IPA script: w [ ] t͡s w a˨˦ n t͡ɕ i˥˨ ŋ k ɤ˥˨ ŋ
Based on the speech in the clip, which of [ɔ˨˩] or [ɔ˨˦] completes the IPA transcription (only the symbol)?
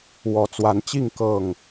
ɔ˨˦